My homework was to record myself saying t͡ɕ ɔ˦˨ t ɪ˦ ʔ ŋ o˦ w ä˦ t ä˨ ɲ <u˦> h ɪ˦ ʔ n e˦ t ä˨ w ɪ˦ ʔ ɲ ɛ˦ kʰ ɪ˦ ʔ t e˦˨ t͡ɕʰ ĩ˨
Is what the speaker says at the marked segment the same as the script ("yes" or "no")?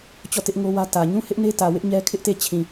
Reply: no